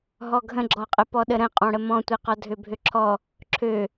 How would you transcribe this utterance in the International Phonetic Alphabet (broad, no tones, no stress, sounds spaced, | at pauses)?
ɦ ɔ ɡʱ ə̃ ɡ͡ǁ ɔ qʼ ə p ɔ ɗ ə ɾ ə̃ qʼ ɔ̃ ɽ ə m ɔ̃ tʷ i q ɔ dʱ ø bʱ ø ǁʰ ɔ | ǁʰ ø